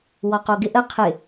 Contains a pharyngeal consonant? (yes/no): no